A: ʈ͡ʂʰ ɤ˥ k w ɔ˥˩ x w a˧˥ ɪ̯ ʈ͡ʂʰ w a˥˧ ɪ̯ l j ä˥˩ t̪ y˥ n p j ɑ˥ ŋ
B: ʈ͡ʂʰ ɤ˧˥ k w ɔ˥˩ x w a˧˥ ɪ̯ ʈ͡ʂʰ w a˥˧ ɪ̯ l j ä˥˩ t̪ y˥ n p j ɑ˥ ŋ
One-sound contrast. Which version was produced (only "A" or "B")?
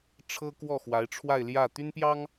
A